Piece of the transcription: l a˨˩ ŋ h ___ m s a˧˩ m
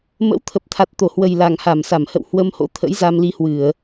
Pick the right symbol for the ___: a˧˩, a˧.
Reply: a˧˩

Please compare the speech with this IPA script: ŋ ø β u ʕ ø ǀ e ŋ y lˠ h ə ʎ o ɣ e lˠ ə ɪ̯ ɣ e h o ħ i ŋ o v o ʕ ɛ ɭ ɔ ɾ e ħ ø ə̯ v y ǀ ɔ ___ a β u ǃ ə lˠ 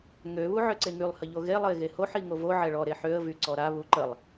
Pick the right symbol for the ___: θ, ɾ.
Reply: ɾ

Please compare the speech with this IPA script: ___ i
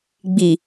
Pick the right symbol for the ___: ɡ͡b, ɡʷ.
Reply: ɡ͡b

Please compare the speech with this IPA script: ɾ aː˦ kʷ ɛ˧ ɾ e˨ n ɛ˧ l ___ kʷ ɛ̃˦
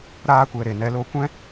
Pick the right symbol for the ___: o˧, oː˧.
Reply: o˧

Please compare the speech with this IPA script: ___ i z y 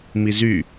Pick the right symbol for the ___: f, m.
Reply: m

